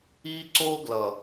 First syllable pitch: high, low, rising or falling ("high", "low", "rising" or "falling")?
high